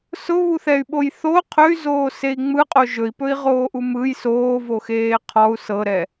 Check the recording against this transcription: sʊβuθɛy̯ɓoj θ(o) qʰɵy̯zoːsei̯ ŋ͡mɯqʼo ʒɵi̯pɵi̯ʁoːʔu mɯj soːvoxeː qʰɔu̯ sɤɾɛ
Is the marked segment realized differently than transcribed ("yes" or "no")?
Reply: no